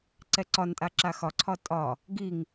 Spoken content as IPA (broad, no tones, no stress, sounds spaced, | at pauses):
ǀ ɛ ǀ ɒ n tʼ a ǁ a x ɒ ǀʰ ɒ tʼ ɒ | ɡ i ŋ